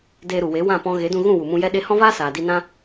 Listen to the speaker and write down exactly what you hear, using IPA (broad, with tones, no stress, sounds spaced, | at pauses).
d eː˧ ɾ u˨ w e˨˦ w ã˦˨ p ɔ̃˧ ɣ e˨˦ d ũ˧ ɣ ũ˦˨ w u˨ m ũ˧ j ɛ˦ ɗ e˦ h ɔ̃˦ v aː˦ s aː˨ d i˧ n ã˦